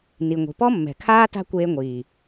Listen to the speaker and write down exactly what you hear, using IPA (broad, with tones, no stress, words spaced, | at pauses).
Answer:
ni˨ŋʷi̤˨ pɔ˦mːɛ̤˨kʰaː˦ ta̤˦kʷeː˧ŋʷiː˨